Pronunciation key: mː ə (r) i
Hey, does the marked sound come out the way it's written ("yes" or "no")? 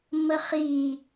no